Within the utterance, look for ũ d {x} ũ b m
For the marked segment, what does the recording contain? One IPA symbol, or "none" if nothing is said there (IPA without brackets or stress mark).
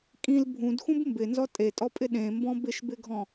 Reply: x